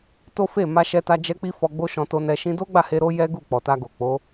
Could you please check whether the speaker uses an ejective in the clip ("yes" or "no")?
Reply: no